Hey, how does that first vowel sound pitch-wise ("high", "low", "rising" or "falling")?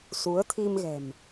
rising